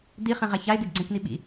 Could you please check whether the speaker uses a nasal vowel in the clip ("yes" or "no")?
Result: yes